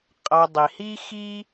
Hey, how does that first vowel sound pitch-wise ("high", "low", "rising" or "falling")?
low